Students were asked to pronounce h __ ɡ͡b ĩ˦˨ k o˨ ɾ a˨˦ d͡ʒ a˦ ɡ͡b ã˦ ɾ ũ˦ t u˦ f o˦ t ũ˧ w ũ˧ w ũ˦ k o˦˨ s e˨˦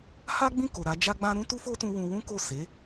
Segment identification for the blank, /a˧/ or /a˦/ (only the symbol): a˦